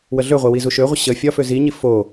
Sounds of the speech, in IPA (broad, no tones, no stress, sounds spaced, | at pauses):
w ə ɮ ø ʁʷ e w i z u ʃ ø ʁʷ ə ɕ ə fʲ ɒ f ø z i ɲ i f o